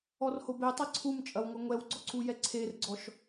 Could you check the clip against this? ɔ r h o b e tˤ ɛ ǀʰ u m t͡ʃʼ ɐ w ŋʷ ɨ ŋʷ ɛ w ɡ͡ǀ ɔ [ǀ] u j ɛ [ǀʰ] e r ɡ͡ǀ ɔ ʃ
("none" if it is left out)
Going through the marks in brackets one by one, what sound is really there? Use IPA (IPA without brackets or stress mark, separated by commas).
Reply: ǀ, ǀʰ